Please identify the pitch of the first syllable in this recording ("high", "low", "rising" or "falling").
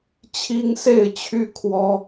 high